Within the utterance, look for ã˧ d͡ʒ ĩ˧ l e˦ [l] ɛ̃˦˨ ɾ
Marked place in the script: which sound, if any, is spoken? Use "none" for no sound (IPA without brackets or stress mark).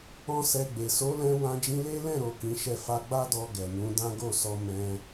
l